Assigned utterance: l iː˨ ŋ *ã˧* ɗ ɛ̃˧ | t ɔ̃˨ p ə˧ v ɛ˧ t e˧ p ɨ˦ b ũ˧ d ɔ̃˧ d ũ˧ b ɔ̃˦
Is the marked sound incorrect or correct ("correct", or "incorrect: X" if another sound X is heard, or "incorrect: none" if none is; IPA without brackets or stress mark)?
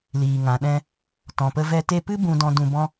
incorrect: ã˨